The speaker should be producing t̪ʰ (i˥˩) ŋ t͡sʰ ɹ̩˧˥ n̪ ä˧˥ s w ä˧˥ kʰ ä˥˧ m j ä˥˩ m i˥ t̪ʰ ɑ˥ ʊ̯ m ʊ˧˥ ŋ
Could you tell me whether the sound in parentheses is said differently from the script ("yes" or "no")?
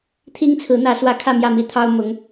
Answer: yes